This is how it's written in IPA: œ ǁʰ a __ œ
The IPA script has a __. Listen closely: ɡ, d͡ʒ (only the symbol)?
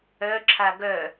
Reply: ɡ